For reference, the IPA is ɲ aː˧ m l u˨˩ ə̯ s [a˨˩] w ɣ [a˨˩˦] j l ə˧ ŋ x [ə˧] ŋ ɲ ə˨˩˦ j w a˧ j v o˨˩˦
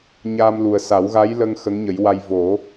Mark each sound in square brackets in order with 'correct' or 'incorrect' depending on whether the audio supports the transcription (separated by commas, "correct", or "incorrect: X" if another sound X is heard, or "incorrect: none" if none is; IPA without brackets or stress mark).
incorrect: a˨˩˦, incorrect: a˧˥, incorrect: ə˧˥